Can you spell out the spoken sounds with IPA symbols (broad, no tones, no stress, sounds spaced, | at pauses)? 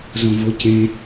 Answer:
z õ v o c ẽ